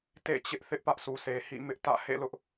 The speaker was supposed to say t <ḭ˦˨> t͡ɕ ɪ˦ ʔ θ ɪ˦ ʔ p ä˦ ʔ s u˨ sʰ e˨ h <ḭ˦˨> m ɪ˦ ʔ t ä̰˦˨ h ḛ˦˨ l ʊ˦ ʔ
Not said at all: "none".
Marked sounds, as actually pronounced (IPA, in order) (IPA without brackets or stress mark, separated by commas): ḛ˦˨, ḭ˦˨